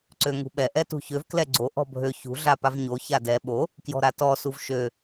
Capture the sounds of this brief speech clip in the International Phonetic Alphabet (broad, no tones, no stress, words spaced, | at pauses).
ǀøŋṳɓɛ ʔɛtṳçøv klɛɡ͡ǀo ʔɔ̤bʱø çṳ ɮapavɲo çadɛ ɓo | kjɔ̤ɾatɔ suvʃø